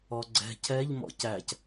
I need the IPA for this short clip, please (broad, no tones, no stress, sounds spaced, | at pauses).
ɔ ɡ͡ǀ ɛ̤ cʰ ɛ ʎ m ɔ̰ c æ c